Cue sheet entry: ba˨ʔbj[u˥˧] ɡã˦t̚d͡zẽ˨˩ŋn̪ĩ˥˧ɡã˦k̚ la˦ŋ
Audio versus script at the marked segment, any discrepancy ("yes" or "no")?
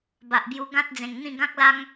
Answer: yes